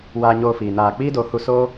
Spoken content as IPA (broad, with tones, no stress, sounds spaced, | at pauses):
w aː˧ ɲ oː˧ f iː˨ n aː˨ k͡p iː˦ d o˨˦ h u˧ s o˦